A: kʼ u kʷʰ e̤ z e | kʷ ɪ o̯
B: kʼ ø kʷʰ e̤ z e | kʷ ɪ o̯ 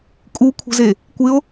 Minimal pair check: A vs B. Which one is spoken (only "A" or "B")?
A